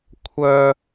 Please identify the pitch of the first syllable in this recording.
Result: high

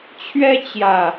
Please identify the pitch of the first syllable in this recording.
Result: high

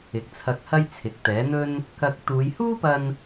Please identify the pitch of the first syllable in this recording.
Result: rising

